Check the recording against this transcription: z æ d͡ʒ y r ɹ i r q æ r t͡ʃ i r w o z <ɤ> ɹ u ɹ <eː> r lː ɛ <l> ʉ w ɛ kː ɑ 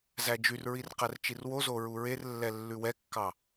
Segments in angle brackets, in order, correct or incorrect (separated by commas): incorrect, incorrect, incorrect